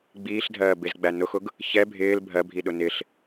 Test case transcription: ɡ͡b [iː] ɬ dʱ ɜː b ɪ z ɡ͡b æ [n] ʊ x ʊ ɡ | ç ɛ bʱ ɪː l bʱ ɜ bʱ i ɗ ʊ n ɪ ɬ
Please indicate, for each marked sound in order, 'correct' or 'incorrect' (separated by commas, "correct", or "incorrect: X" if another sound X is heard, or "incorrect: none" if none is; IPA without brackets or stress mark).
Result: correct, correct